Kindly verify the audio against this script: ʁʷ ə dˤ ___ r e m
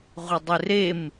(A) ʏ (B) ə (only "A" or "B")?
A